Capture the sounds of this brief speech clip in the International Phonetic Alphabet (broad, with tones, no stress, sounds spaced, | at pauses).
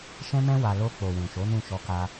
ʃ ɛ̃˦ m ɛ̃˦ w a˧ l o˧ k͡p o˨ w ũ˨ ʃ o˨˦ n ũ˦˨ ʃ ɔ˧ k a˧